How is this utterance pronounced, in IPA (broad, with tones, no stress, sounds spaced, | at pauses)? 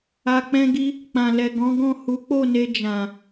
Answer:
a˧ k͡p ɛ̃˦ ɡ i˦ | k͡p ã˨ l ɛ˨ ɡ ɔ̃˨˦ ɡ ɔ̃˦˨ h u˨˦ k͡p o˦˨ n e˧ d͡ʒ ã˨